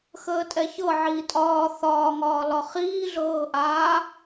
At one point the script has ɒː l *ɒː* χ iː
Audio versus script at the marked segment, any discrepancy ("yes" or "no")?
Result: yes